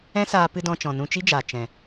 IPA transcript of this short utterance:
ɛ̃˦ s aː˧ p ɨ˧ d ɔ̃˧ t͡ʃ ɔ̃˨ n ũ˧ t͡ʃ i˦ d͡ʒ aː˨ t͡ʃ ɛ̃˨

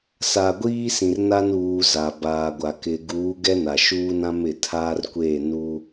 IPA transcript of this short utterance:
s a˨ ɡʷ iː˦ s ĩ˨ r n a˦ n uː˨ z a˨ b aː˨ ɡʷ a˨ k ɪ˨ ɡ uː˨˦ ɡ ɛ˦ n a˨ ʃ uː˦ n ã˦ m ɪ˨ tʰ aː˦ r kʷ eː˦˨ n u˦

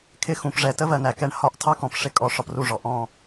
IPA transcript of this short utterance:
kʰ ɪ˦ x ũ˨ p ʐ ɛ˨ t ə˦ v ɜ˨ n æ˨ k ɛ˧ ɳ h ɒ˦ ʔ tʰ ɑ˦ k ɔ̃˨ p ʂ ɪ˦ kʼ ɔ˧ ʂ ɒ˧ p r u˦˨ ʐ ɔ˨ ʔ ɔ̃˦˨

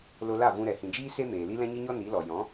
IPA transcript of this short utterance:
l o˧ l a˦˨ v ũ˧ ɾ ɛ˨ h ĩ˨ d͡ʒ iː˦ s e˦ m eː˨ l i˦ l ɛ̃˦ ɲ ɨ˦ ɲ ɔ˦ n i˨˦ l ɔ˨ j ɔ̃˨˦

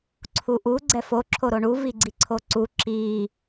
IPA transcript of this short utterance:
ǀʰ u ʔ u ɡ͡ǀ ɛ f o ǁʰ o ɾ o ɳ u v i ɡ͡ǀ i ǀʰ o ǀ u ǁ i

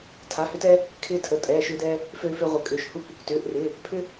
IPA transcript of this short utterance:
tʰ a˩˧˩ h ʏ˦ t ɛː˦ | kʰ ɪː˦ tʰ ə˩˧˩ tʼ ɛː˩˧˩ ʃ ʏː˦ d ɛː˦ | f øː˦ f ʏː˦ ʁʷ ə˩˧˩ kʼ ʏː˩˧˩ ʃ h u˦ kʷ | t ʏː˩˧˩ ʔ r ɪː˩˧˩ | pʰ ʏ˦

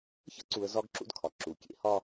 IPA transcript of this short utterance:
ç ə̰˦ ǀ u˨ ə̯ z ɒ˦ ɡ ǁ ṵ˦ d kʰ ɒ˨ ǁ u˨ kʲ ḛ˦ h ɒ˦

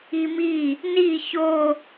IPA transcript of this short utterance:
i m i | n i ç o

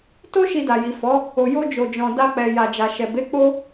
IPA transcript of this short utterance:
t o˦ ʃ i˧ d a˨ j i˨ f ɔ˨˦ | o˨ j o˧ d͡ʒ o˨ d͡ʒ ɔ̃˨ d a˧ k͡p ɛ˨ j a˨ d͡ʒ a˨ ʃ ɛ˨ b e˨˦ k͡p o˦

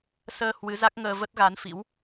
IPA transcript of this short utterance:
s əː˧ h w ɨ˨˦ z a˦˥ k̚ ŋ əː˧ v ə˦˥ t̚ ɣ a˨˦ n f ḭ˧˥ w

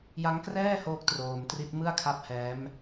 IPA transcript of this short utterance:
j a˦˥ ŋ k r ɛː˥˩ h oː˦˥ k̚ t r oː˧ m t r i˦˥ t̚ m ɯ˥˩ a̯ kʰ a˦˥ p̚ h ɛː˦˥ m

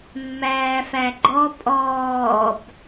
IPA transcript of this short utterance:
mː æː f æ ɡ͡ǃ ɔ pʼ ɔː b

